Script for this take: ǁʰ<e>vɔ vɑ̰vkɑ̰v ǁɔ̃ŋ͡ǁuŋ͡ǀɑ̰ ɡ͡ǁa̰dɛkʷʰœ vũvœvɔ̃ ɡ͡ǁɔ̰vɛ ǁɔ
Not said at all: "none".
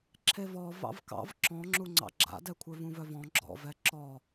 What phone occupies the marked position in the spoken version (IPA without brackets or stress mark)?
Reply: e